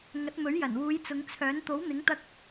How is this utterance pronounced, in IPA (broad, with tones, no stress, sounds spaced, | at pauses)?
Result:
ŋ ɐ˨˥ t̚ m ɵ˨˥ ɥ j ɐ˨˩ n w uː˨˧ j t͡s ʊ˨˧ ŋ t͡sʰ œː˨˥ n t̪ o˨˥ w n̪ ɪ˨˥ ŋ t̪ ɐ˧ k̚